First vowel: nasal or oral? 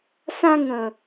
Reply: nasal